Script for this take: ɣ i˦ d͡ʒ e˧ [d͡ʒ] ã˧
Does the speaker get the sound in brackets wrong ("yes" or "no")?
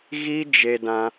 yes